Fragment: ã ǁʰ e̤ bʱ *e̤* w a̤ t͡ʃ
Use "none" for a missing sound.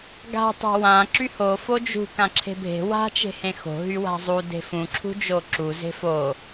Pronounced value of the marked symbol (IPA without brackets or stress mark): e̤